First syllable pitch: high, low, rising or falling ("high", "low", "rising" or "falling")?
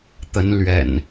rising